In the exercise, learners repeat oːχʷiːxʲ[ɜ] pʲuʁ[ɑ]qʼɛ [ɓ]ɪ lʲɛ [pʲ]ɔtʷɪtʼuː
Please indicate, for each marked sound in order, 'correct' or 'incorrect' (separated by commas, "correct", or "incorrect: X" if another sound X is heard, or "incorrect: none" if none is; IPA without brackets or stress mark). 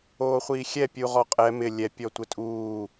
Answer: incorrect: ɛ, incorrect: ɔ, incorrect: m, correct